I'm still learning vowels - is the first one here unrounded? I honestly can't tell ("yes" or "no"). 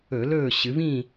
no